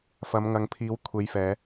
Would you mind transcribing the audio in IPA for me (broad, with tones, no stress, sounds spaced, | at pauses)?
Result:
f ɐ˨˧ m ŋ ɐ˨˧ ŋ pʰ iː˨˧ w kʷʰ e˨˧ j f ɛː˨˧